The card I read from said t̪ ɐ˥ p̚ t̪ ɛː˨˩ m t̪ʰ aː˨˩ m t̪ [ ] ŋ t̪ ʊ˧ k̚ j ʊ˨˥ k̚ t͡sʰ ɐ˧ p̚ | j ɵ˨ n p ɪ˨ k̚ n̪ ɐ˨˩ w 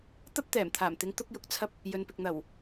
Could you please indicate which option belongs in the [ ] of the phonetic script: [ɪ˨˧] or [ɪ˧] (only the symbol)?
ɪ˨˧